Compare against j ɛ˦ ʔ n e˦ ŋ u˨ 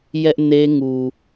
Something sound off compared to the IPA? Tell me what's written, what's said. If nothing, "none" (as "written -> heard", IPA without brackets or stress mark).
none